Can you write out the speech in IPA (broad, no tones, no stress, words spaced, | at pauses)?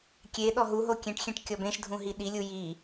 kʲe ɗɔɦuɦo kʲẽʈxʲẽʈ kʲɔbẽʃdʱũ ɦiɗilʲu ji